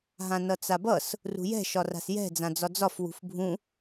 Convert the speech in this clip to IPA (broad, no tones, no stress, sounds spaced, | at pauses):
ɦ ã n ʌ t͡s a b ʌ s | r ṳ j ɛ̤ ʃ ɒ r a̤ s j ɛ̤ d͡z ã d͡z ɒ d͡z ɒ f w ṳ f bʱ ũ